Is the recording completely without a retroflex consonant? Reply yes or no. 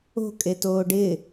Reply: no